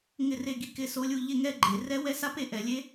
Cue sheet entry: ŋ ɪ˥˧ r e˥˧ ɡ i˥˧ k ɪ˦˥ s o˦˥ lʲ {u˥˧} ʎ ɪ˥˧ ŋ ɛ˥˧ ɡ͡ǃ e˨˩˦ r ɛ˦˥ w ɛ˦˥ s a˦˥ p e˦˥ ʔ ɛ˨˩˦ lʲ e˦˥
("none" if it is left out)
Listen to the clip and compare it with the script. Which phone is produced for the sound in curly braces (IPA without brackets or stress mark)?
u˥˧